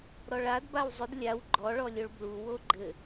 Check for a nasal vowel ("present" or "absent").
absent